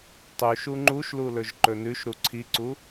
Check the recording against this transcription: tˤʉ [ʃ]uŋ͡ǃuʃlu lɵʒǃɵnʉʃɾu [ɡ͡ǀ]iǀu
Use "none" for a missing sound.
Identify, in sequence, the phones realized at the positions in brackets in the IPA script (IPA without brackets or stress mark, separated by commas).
ʃ, ǀʰ